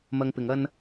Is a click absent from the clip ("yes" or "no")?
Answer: yes